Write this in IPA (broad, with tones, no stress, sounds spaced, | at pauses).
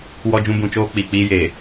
w ɔ˦ d͡ʒ ũ˦ b ũ˨˦ t͡ʃ oː˦ k͡p i˨ k͡p iː˦ j eː˨